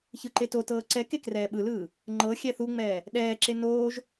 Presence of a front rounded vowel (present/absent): absent